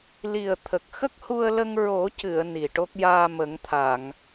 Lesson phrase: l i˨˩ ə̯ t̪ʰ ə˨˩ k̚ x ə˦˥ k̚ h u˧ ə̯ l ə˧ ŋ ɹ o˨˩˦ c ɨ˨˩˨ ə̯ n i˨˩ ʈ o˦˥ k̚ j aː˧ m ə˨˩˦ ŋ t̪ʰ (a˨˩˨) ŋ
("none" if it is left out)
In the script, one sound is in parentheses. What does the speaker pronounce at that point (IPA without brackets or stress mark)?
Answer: a˨˩˨